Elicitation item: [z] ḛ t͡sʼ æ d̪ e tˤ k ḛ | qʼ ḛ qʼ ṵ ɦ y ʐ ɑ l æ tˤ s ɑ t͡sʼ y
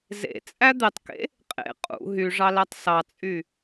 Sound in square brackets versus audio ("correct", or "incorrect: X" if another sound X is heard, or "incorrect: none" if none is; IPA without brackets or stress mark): correct